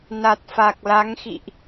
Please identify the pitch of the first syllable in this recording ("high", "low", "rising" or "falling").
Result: low